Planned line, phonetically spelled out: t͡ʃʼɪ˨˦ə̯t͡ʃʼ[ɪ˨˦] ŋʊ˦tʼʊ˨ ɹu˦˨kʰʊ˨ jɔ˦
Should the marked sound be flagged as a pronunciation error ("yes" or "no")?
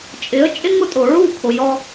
yes